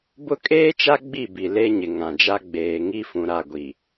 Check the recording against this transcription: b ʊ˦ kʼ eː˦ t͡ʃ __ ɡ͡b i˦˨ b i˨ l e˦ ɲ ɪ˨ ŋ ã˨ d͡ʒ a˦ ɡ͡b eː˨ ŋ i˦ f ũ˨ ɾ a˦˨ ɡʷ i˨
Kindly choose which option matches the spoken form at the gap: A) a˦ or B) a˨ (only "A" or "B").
A